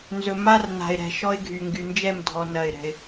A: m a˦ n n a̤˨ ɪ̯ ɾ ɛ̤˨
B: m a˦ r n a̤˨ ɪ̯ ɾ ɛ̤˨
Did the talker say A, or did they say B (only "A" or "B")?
B